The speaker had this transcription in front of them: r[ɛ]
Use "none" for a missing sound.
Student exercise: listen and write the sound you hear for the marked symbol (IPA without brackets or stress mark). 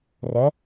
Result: ɛ